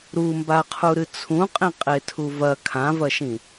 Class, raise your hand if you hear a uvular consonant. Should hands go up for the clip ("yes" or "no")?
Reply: yes